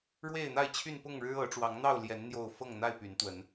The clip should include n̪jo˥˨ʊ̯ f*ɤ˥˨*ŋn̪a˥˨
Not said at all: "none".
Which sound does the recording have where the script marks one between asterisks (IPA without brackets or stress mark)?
ɤ˥˨